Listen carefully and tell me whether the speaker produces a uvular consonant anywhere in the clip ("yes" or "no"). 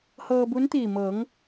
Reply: no